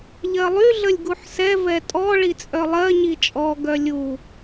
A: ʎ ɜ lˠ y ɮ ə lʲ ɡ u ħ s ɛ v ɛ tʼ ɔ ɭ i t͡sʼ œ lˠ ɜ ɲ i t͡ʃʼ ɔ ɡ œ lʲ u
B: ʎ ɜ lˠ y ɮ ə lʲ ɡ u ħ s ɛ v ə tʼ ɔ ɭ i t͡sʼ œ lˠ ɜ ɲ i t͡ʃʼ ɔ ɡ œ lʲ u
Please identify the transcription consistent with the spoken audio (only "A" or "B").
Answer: A